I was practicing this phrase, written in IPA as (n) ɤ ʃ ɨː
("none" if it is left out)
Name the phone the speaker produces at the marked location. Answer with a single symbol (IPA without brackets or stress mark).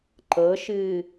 ǃ